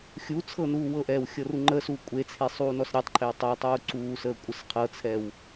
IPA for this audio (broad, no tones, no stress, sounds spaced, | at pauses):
xʲ u t͡sʰ ɤ n uː w ɤ ʔ ɛː w xʲ ɤ r u ŋ͡ǃ əː s uː kʷʼ e t͡sʰ e sˤ uː n ɔ s ɾʲ e tˤ ǃʰ e w tˤ ə w tˤ uː ǀ uː s əː kʷʼ ə s qʰ ɤ t͡sʰ ɛ w